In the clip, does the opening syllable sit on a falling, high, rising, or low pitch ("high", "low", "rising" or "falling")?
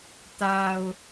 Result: low